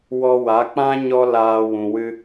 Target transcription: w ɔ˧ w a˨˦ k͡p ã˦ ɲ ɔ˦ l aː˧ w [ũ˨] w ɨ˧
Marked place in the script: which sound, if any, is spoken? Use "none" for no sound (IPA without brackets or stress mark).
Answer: ũ˨